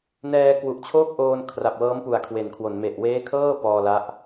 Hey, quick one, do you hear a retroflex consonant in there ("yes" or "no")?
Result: no